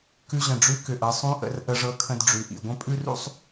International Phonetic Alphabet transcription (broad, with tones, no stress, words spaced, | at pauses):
kʉ˧ʑə̃˩ɖ͡ʐʉ˧˥ kʏ˩ʔɤ˩˧ sˤũ˧˥ʔə̰˩˧r ʔə˧ʐɤ˧kʰə̃˧d ɖ͡ʐʉ˩ʔḭ˩ɡʷə̃˥ pʼʉ˥rṵ˥sˤ